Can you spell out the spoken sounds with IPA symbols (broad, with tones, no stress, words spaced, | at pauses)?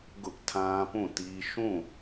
ɡʊ˦ʔtʰã˦pũ˦˨ti˦ ʃũ˦˨